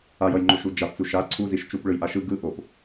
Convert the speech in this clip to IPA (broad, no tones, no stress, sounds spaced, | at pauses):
a j ʌ j ŋ͡ǃ o ʃ u d͡ʒ a p t͡s u ʃ a ǀʰ u z i ʃ t͡ʃ u p ɭ ɯ j ʔ a ʃ ɯ ɡ ɯ ʔ o p